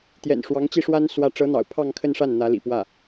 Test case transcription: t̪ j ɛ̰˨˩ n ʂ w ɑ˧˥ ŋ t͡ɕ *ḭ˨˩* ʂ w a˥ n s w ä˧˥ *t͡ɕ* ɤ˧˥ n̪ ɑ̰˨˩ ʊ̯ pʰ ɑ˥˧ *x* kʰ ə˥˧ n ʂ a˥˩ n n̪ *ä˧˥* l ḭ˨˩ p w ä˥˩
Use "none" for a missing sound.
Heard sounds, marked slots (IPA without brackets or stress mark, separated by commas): i˥˩, ʈ͡ʂ, ŋ, ä˧˥